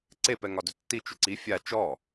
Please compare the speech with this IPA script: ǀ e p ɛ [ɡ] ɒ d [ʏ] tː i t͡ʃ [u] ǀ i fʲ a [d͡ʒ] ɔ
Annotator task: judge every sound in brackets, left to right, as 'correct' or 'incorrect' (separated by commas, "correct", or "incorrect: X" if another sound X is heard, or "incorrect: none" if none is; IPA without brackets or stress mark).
incorrect: ŋ, correct, incorrect: ʏ, incorrect: t͡ʃ